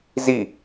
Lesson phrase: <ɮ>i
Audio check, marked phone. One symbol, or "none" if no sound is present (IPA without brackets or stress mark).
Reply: z